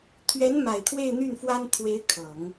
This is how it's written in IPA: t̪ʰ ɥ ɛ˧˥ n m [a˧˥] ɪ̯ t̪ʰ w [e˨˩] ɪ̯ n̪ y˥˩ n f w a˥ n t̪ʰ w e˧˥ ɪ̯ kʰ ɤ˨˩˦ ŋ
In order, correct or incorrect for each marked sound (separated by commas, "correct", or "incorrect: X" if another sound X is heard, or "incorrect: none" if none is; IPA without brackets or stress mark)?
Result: incorrect: a˨˩, incorrect: e˥˧